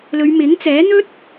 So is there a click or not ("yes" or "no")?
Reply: no